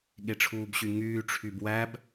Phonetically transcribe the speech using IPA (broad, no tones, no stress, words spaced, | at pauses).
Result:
ɠeʈ͡ʂʰuːbɕyŋyː ʈ͡ʂʰybwæb